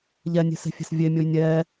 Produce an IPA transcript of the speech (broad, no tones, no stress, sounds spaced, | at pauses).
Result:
ʎ ɛ nʲ e̤ s e̤ fʲ e̤ s vʲ e mʲ o j nʲ ɛː